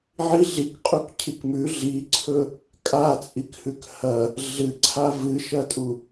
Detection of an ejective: present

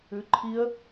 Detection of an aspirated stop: present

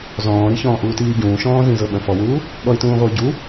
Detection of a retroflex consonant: absent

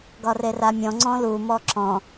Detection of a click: present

